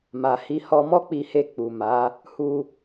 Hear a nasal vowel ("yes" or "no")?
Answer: no